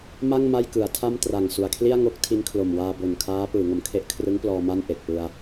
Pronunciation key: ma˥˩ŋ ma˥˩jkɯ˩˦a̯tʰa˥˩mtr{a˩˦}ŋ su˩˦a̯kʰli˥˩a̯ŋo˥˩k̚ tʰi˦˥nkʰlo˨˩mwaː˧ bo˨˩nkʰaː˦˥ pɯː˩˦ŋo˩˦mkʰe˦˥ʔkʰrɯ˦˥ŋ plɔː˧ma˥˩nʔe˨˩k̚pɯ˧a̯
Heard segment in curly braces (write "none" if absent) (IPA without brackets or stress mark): a˨˩